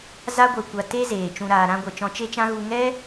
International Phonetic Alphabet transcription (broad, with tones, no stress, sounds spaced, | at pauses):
z a˦ ɡʷ e˧ kʷ a˧ t e˦ z eː˨ t͡ʃ ũ˧ ɾ aː˧ ɾ ã˦ ɡʷ ɛ˧ t͡ʃ ɔ̃˦ t͡ʃ e˦ t͡ʃ ã˦ ɣ u˦ ŋ ɛ˦